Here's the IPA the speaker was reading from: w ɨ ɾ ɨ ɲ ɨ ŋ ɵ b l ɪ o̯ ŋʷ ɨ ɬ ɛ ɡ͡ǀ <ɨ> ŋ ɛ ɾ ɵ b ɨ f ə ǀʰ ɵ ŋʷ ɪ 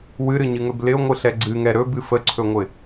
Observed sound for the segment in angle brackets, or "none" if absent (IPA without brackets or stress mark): ɨ